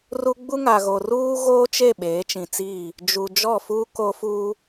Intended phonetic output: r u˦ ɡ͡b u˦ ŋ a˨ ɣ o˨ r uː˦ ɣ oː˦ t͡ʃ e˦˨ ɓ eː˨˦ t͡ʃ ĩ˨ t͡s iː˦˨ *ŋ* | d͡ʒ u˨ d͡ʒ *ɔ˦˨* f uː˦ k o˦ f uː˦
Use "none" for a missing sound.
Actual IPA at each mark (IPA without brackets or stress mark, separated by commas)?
none, ɔ˦˨